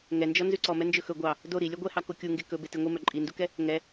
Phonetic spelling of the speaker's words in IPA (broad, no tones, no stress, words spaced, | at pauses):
ŋɛnd͡ʒɔ nzʉǀɔmɛ nd͡ʒɵxɵ ɡʷɑ | do ɾi lʲœɡʷɛhɑ kokʲuŋɡe kɵ betiŋʷimœ ǃʼindukɛ | ŋɛ